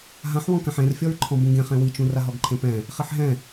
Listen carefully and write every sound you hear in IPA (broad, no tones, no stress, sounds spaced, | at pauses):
ɦ ã ħ w ɔ̃ k ã ħ ẽ r fʲ ɔ ɹ ǃʰ ɔ̃ b ũ ɡ ẽ χ ẽ w i t͡ʃ ũ r a ɦ ɔ ɡ ǃʰ ẽ p ɛ̃ | χ i ħ ɦ ɛ̃